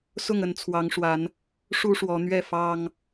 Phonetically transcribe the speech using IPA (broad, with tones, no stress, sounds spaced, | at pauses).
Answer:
s ʊ˥˨ ŋ ə˥˨ n t͡sʰ w ɑ˨˦ ŋ ʂ w a˨˦ n | ʂ u˦ ʂ w ɔ˨˦ n̪ ɥ ɛ˥˨ f ɑ˦ ŋ